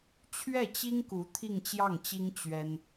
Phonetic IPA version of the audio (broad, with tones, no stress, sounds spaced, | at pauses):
t͡ɕʰ ɥ ɛ˥˩ t͡ɕ i˥ ŋ k u˧˥ t̪ʰ i˥˧ ŋ t͡ɕ j ɑ˥˩ ŋ t͡ɕ i˥ ŋ t͡ɕ ɥ ɛ˥ n